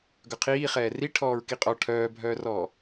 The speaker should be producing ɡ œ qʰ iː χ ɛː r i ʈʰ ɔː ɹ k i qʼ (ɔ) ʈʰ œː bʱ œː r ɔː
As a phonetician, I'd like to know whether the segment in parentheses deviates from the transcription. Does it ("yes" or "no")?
no